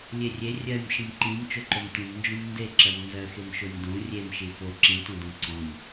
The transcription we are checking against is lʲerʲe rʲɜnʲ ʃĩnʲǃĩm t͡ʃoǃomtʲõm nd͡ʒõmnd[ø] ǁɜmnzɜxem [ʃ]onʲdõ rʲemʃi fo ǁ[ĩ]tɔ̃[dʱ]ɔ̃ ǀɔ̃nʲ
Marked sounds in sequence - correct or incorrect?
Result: incorrect: e, correct, correct, incorrect: d

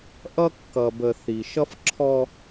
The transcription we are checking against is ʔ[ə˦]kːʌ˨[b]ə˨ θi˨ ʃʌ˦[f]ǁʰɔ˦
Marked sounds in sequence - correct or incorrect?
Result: incorrect: ʌ˦, correct, correct

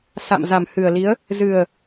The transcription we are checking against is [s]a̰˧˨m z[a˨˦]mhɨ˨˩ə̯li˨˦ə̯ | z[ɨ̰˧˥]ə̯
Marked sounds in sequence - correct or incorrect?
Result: correct, incorrect: a˨˩, incorrect: ɨ˨˩

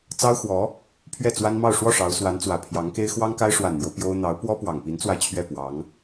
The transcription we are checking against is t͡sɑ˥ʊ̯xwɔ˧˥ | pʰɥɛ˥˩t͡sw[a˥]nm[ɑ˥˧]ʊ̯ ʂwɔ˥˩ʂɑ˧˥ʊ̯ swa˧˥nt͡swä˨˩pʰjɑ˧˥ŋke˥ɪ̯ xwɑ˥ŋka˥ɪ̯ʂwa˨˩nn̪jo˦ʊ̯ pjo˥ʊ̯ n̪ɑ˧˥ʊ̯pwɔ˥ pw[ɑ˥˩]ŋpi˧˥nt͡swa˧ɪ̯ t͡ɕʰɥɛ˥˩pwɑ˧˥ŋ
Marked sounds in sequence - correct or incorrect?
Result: correct, correct, incorrect: ɑ˨˩

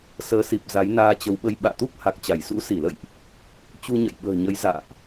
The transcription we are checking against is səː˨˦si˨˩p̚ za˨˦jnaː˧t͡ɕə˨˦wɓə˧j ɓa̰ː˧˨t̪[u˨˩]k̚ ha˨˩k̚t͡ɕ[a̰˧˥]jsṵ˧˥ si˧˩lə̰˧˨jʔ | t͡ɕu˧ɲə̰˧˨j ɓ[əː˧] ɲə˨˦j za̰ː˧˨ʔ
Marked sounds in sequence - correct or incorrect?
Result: incorrect: u˦˥, incorrect: a˧˩, incorrect: ə̤ː˨˩

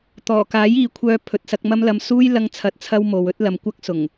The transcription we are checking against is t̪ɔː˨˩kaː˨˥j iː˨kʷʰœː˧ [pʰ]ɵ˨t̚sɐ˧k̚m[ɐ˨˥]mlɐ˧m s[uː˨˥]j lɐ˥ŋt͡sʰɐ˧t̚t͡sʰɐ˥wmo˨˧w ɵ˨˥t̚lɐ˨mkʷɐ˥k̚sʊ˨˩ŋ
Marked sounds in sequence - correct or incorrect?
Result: correct, incorrect: ɐ˥, incorrect: uː˥

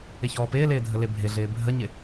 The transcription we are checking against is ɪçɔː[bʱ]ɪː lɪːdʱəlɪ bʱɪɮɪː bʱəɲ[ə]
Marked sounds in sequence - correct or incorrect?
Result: incorrect: p, incorrect: ɪ

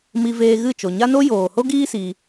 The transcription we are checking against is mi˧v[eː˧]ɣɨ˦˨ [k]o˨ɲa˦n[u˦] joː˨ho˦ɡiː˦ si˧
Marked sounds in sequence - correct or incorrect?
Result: correct, incorrect: t͡ʃ, incorrect: o˦

